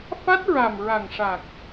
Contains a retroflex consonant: yes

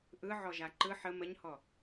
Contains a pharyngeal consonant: yes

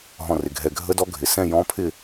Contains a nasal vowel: yes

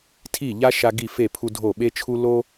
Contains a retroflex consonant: no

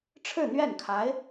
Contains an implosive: no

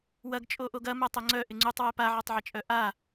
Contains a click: yes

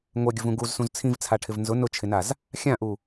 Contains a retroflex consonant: yes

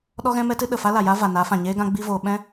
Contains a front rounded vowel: no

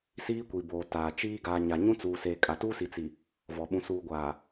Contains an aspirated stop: no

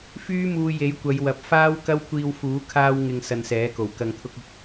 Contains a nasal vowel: no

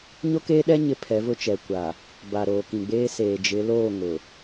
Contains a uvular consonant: no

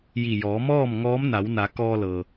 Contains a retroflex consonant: no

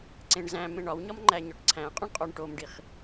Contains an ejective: yes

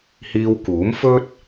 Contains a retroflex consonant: no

